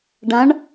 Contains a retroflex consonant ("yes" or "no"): yes